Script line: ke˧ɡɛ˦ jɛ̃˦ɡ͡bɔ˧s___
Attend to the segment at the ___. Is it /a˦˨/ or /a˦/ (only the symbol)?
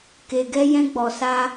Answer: a˦